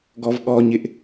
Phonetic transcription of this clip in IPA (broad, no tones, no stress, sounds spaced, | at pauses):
ɡ ɔ v ɠ ɔ ɲ ɪ ʔ